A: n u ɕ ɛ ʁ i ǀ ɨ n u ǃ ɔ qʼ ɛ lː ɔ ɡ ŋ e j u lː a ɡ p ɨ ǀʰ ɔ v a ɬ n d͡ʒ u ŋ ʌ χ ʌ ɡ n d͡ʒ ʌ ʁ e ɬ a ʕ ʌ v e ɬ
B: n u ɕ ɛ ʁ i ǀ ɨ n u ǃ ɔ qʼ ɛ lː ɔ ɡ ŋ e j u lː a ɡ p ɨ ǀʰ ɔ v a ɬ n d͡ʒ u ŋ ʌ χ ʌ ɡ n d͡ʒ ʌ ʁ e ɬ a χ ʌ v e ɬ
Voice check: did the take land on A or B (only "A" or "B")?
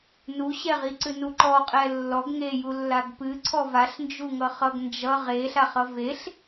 B